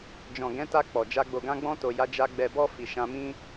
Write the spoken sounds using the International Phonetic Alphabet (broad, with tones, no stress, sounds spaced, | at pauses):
d͡ʒ ɔ̃˨ ɡ ɛ̃˨˦ t a˧ k͡p ɔ˨ d͡ʒ a˧ ɡ͡b o˨ ɡ ã˧ ɡ͡b ɔ̃˧ t o˨ j a˨˦ d͡ʒ a˧ ɡ͡b ɛ˨ b ɔ˧ f i˨ ʃ ã˧ m ĩ˦